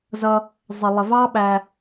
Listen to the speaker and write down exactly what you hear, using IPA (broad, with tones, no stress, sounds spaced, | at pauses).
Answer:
z ʌ˧ | zˤ ɪ˨ lˠ ɪ˨ v ɑ˦ ɓ æ˧